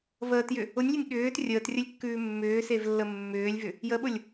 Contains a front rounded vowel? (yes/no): yes